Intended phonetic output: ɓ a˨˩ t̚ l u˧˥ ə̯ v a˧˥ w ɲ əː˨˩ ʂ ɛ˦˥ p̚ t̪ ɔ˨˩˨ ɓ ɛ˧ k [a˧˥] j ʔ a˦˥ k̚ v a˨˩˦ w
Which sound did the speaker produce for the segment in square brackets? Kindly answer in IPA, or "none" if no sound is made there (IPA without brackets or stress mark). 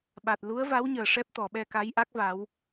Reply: a˧˥